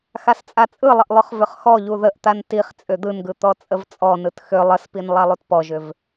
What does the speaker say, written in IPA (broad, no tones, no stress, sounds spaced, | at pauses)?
x a s t͡sʼ a t͡sʼ ɯ lˠ ə ʔ lˠ ʏ χ v ʏ χ x ɔ ʎ u ð ə ʔ t̪ a n t i χ t͡sʼ ʏ d̪ ɯ n ɡ ɯ t̪ ɔ t͡sʼ ə v t͡sʼ ɔ n ɯ t x ʏ lˠ ə s p i n lˠ a lˠ u t p ɔ ʒ ʏ v